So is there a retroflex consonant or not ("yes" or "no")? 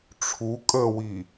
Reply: yes